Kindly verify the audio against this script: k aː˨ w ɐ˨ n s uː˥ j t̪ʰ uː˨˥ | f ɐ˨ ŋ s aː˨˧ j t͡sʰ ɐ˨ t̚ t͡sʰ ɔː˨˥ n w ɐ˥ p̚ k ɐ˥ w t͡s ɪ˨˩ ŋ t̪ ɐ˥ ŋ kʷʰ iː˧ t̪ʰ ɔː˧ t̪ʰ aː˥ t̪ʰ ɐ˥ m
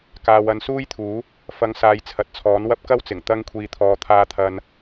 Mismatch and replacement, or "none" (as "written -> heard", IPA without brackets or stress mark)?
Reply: m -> n